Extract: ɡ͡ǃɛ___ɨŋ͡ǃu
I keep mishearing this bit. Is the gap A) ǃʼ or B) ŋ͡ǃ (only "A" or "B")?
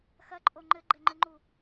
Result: B